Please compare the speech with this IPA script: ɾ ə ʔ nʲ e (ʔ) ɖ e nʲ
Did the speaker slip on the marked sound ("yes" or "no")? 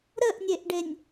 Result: no